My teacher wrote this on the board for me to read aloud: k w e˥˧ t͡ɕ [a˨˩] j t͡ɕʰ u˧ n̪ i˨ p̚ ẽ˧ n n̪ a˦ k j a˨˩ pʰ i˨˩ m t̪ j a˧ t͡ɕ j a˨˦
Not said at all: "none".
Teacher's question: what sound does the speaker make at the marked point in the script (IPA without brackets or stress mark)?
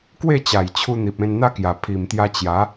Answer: a˨˩